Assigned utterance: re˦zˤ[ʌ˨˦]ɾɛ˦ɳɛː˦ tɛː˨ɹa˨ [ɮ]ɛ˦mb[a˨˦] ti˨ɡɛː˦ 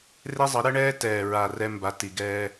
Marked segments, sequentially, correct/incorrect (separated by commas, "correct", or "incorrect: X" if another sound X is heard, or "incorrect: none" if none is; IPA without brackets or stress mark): correct, incorrect: r, correct